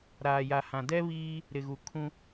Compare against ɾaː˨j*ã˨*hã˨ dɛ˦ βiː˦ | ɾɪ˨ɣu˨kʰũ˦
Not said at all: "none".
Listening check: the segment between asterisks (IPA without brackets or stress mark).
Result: a˨